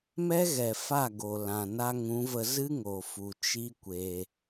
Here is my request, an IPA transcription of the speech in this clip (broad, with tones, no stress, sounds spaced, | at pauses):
m ɛ˦ ɣ ɛ˨ f a˦˨ ɡ o˨ l ã˨ n a˧ ŋ ũ˨˦ v ə˧ z ɨ˦ ŋ o˨ f u˨ t͡ʃ i˦ kʷ e˧